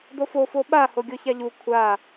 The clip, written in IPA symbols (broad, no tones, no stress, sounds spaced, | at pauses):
d o f o f o ɓ a h o ɡʲ o ç a ʎ u kʷʰ a